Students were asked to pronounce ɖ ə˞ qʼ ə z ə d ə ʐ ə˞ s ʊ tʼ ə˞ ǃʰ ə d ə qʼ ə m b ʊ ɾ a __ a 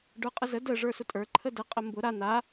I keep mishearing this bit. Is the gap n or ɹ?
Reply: n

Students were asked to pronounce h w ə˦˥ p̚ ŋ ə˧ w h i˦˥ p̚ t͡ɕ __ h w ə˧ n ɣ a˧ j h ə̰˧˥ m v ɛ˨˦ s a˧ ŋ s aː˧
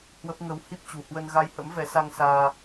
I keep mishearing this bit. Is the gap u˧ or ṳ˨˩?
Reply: ṳ˨˩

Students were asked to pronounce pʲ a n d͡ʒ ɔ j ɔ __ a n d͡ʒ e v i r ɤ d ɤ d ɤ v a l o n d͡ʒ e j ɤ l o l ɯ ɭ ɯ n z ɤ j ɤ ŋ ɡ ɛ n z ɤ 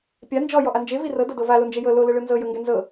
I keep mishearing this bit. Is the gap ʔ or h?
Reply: ʔ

